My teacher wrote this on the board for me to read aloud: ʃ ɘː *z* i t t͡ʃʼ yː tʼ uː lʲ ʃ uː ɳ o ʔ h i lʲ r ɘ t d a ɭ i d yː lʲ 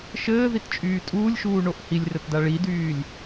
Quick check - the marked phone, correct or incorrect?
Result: incorrect